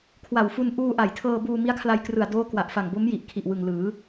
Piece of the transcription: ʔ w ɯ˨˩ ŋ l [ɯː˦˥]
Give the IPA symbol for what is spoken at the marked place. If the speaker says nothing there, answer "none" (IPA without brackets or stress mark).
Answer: ɯː˩˦